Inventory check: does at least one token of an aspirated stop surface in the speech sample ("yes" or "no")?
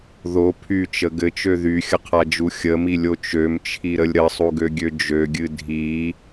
yes